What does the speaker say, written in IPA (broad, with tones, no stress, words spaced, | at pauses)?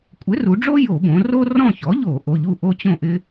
kʷʼɪ˩˥ru˩˧ɖ͡ʐo˦ jo˧˩˧bõ˩˧ ro˦rɔ̃˦˨çɔ˩˥ʎo˧˩˧ ʔo˩˧˩ʎu˦˨ ʔo˦t͡ɕõ˦˨ʔɪ˦